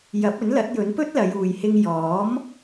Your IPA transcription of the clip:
j ɐ˨˥ p̚ ɵ˨˥ n l ɐ˨˥ t̚ j ɵ˨˥ n p ɵ˥ t̚ l ɐ˨˧ j uː˨ j h ɪ˧ ŋ j ɔː˨˥ m

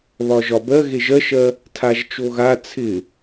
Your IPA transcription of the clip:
β ɒ ʒ ɒ b ɜ ɣ e ʒ ɜ ʃ ɜ | tʰ a ʒ t͡ʃ o ɣ a t͡sʰ ɪ

